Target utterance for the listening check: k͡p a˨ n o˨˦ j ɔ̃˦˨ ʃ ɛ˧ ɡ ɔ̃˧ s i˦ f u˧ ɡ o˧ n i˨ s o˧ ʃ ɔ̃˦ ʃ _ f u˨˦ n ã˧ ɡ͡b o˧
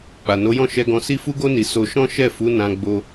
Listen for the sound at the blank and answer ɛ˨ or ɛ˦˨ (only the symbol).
ɛ˦˨